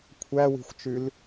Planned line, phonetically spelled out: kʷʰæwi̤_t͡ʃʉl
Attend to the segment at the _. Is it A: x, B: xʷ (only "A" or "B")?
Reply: B